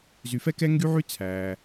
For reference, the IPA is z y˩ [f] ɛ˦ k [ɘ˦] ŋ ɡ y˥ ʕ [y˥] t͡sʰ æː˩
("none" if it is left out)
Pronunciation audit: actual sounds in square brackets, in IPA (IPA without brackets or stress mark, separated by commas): f, ɛ˦, y˥